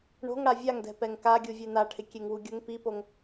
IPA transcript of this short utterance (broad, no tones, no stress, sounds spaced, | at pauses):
ɳ o̤ ŋ ɽ a vʲ a ŋ d ɛ̤ p ɛ ŋ k a ɡʲ u vʲ e n a ʈʰ ɪ kʲ e ŋ w u ɡʲ ʊ ŋ p i p o ŋ